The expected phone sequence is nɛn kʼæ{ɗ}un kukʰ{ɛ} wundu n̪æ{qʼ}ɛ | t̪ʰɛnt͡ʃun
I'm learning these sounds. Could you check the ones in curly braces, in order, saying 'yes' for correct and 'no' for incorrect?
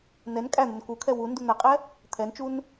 no, yes, yes

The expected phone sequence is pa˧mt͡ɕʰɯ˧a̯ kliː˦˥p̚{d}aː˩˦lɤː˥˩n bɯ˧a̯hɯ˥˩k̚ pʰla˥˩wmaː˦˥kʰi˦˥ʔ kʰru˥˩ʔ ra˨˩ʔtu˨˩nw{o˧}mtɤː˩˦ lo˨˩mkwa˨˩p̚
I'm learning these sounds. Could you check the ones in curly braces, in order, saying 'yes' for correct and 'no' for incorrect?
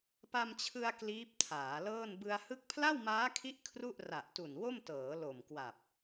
no, no

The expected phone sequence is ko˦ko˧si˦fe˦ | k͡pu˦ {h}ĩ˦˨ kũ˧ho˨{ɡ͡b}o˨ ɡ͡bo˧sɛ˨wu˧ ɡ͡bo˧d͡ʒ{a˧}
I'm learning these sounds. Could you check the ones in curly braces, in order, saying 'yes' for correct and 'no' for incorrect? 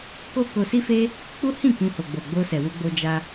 yes, yes, yes

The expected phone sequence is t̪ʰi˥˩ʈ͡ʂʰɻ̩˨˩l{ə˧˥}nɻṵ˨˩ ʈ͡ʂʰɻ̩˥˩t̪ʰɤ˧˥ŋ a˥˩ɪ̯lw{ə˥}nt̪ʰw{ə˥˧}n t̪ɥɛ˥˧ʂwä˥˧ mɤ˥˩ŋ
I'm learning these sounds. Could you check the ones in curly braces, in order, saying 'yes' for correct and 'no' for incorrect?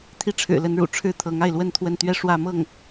yes, yes, yes

